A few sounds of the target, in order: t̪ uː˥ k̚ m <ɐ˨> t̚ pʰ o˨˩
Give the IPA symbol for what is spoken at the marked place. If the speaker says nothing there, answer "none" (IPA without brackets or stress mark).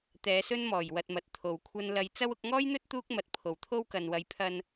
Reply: ɐ˨